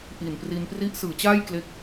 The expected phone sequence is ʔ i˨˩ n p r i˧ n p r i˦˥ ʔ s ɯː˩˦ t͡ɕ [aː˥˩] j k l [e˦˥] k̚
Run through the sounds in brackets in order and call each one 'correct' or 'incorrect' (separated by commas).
correct, correct